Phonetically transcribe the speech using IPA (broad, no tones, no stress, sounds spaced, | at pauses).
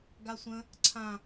ɡ a sʷ ə̃ | ǀʰ ã